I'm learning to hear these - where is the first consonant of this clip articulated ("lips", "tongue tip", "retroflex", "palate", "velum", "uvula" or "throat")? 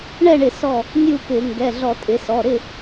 retroflex